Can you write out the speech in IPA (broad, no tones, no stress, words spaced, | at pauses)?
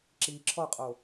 ǁi ǁʰɔqʼo